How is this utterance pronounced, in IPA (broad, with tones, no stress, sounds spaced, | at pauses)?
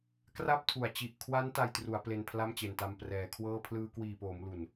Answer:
k r a˥˩ p̚ tʰ u˨˩ a̯ t͡ɕ i˨˩ ʔ kʰ w a˦˥ n t a˧ j t r u˩˦ a̯ p l e˧ n pʰ l a˥˩ m t͡ɕ e˨˩ n t a˧ m p r ɛː˩˦ kʰ w ɤː˥˩ pʰ l ɯː˧ k w iː˨˩ p oː˩˦ m l u˨˩ n